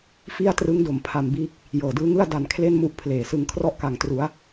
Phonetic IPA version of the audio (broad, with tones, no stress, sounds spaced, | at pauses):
f i˥˩ a̯ t r ɯ˦˥ ŋ d o˩˦ m pʰ a˧ m b iː˦˥ k̚ | j ɤː˨˩ d ɯː˦˥ ŋ ɯ˥˩ a̯ d a˧ n kʰ l e˥˩ n m u˦˥ ʔ pʰ l eː˨˩ s ɯ˧ ŋ kʰ r ɔ˦˥ ʔ k a˨˩ ŋ t r u˩˦ a̯